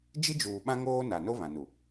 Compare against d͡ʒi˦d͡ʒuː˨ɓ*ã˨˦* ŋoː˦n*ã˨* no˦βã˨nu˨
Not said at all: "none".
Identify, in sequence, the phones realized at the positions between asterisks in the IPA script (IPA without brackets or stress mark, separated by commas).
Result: ã˦, a˨